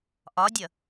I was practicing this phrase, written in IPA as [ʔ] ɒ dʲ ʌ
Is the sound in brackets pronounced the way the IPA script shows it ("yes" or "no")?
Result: yes